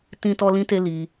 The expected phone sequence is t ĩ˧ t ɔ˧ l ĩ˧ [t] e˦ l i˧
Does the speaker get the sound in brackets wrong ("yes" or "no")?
no